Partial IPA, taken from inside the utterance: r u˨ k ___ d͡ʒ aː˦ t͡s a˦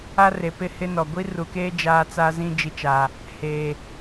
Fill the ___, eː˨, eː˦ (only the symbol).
eː˦